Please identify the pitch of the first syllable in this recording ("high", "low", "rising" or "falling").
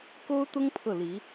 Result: high